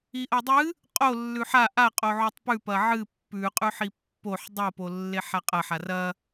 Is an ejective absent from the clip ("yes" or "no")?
no